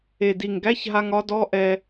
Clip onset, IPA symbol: e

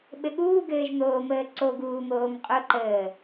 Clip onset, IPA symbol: ɓ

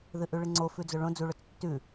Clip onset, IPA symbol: ð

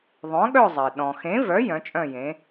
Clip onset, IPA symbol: ðˤ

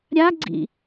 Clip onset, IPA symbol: ɾʲ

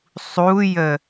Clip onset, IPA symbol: sˤ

